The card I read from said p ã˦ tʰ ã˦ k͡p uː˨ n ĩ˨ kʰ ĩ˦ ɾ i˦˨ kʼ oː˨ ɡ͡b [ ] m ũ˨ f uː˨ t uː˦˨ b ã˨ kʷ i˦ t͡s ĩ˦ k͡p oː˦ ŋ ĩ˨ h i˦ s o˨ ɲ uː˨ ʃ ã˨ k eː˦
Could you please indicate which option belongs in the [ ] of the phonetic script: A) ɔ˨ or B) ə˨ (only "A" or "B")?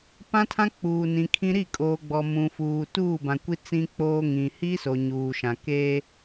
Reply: A